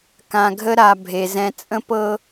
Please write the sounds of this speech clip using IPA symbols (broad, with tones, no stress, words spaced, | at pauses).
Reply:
kã˨ɡʱə˦ɾa˨ bʱe˨zɛ̃˦ t͡sʼə̃˦pɤ˦